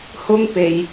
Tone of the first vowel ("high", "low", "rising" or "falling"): high